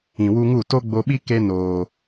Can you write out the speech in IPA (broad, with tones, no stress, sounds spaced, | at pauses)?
ĩ˨ w u˧ ŋ u˦˨ t o˦ ɡ͡b o˧ ɓ i˦ k e˦ n oː˨